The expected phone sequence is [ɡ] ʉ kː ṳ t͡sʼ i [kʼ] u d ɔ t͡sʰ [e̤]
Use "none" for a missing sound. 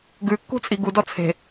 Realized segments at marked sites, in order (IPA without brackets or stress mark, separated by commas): ɡ, ɡ, e̤